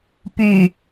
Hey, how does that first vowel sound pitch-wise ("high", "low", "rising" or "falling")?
low